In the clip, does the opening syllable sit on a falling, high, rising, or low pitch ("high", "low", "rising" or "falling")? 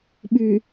low